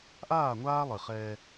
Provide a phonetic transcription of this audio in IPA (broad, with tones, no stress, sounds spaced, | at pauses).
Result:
ʔ aː˦˨ ŋʷ aː˦ lˠ ɨ˨ χ ɛː˦